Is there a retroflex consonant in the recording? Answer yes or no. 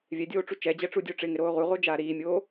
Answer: yes